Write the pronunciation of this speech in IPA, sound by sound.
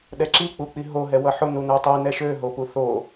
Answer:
ɗ ɛ ǁ i k͡p u k͡p i ɦ o ɦ ɛ w ʌ ħ ʊ n u n ø tˤ i n ɛ ʃ ø ɦ o p u θ o

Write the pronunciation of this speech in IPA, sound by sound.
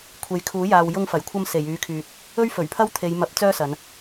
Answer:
kʷʰ e˨ j kʰ uː˨˥ j aː˨ w j ʊ˧ ŋ f ɐ˨˩ j kʷʰ ɐ˧ m s e˨˩ j yː˨˧ kʰ yː˨ t̚ | ɵ˥ ɥ f ɵ˨˩ ɥ pʰ ɐ˥ w t̪ʰ e˨˧ j m ɐ˨˥ p̚ t͡s œː˥ s ɐ˨˧ n

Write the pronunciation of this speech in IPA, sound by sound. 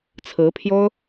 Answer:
t͡sʰ ɹ̩˧˥ pʰ j o˥ ʊ̯

